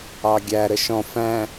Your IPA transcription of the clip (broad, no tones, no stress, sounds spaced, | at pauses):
ɑ ɡʲ æ ɾ ə ʃ ɔ̃ f æ̃